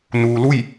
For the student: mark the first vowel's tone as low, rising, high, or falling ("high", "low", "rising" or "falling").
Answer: low